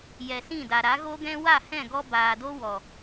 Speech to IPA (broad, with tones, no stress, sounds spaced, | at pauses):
j ɛ˨ s ĩ˦˨ d a˨ ɾ a˨˦ ɣ o˦ ɡ ɛ̃˦ w a˦˨ h ɛ̃˦˨ ɡ ɔ˧ b aː˨ d o˦ w ɔ˨